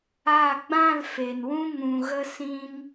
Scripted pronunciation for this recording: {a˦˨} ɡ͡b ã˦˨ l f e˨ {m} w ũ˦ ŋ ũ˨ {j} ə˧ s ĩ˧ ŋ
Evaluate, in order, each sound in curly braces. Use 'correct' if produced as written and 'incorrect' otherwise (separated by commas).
correct, incorrect, incorrect